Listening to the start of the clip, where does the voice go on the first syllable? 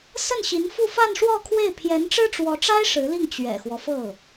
falling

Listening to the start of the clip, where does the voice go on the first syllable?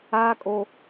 high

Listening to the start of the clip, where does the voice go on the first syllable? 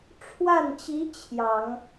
falling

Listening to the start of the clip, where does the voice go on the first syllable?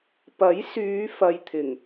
rising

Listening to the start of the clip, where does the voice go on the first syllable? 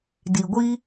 low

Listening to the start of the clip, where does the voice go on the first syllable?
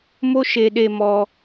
high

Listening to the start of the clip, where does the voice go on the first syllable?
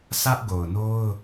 high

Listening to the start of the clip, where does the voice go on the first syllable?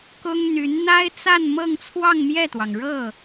high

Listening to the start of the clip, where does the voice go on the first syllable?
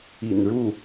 low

